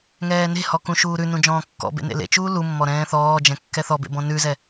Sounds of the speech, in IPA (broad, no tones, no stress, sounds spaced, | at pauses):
ŋ ɛː n e̤ h ɔ k ũ ʃ uː ɾ ʉ n ũ d͡ʒ ɔ̃ː kː ɔ̰ b ḛ n ḛ l ḛ t͡ʃ uː l u mː ɔ ɾ ɛ̃ː θ ɔː d͡ʒ ɛ̃ kː ɛ θ ɔ b ḛ b ɔ̃ n ʉ z ɛ